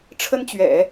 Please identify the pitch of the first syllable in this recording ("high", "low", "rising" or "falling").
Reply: high